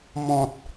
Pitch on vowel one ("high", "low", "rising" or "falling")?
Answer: low